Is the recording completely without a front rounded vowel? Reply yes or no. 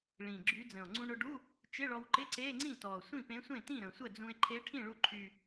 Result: no